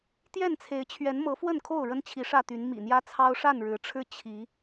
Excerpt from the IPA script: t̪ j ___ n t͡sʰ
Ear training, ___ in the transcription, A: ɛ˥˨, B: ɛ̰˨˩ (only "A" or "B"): A